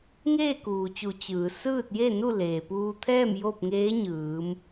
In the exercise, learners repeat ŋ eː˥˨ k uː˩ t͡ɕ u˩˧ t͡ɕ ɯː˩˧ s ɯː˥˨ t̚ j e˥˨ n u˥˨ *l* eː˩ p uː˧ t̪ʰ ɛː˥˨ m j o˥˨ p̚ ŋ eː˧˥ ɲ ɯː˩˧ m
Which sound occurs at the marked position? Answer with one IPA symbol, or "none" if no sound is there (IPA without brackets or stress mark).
l